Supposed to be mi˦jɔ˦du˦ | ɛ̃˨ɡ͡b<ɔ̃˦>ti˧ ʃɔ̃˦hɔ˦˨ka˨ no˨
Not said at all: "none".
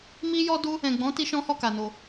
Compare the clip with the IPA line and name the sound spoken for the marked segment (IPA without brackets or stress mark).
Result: ɔ̃˨˦